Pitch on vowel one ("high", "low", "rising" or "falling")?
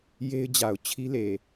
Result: high